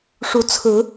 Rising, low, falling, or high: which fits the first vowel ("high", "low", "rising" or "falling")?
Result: rising